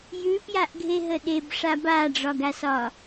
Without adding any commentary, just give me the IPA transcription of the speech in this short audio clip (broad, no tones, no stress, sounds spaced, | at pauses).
j ʉ p j a ʔ ɡʱ e ɦ ə ɗ e b ʂ a b a ɖ͡ʐ ɒ ɡ a s ɒ